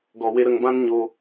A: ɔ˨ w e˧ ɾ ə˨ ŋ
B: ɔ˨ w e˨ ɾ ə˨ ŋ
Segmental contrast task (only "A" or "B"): A